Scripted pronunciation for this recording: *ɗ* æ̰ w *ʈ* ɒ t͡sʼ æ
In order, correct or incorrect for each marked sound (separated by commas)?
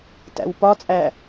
incorrect, incorrect